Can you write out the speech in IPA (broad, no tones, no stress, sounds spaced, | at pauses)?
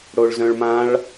ɽ o ɭ z œ̃ ɭ m ã ɭ